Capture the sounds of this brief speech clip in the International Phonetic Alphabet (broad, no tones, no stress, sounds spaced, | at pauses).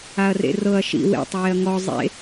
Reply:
a ɐ̯ r ḛ r ɤ ɐ̯ ʃ ḭ w ḛ tˤ w e ɐ̯ ŋ ɔ zˤ ḛ